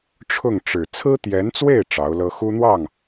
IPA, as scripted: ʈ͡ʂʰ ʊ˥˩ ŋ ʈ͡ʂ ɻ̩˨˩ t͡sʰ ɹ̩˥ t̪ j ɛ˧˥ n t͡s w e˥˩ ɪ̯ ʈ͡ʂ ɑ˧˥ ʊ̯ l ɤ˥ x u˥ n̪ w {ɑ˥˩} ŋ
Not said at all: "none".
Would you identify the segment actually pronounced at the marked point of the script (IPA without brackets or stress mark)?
ɑ˥˩